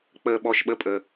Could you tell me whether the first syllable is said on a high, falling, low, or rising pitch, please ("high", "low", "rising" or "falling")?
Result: low